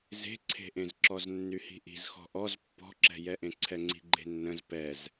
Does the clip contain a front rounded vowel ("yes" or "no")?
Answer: yes